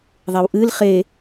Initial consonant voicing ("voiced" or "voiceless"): voiced